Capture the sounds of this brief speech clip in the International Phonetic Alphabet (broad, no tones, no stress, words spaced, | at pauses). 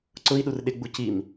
ǀʊi̯ ɗurɗɪɡ͡bu cim